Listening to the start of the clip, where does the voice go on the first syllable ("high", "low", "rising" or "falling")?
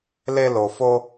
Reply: high